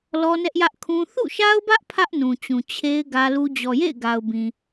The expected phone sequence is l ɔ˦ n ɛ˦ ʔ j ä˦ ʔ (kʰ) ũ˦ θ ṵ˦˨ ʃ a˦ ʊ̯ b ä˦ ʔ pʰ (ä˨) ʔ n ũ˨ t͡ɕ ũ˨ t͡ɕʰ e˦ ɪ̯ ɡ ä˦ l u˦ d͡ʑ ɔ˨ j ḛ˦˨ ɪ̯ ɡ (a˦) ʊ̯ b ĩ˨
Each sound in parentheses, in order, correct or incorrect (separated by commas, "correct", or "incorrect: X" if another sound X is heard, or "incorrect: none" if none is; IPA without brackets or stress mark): correct, incorrect: ä˦, incorrect: a˨